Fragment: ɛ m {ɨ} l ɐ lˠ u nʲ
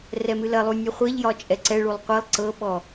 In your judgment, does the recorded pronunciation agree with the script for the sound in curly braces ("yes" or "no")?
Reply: yes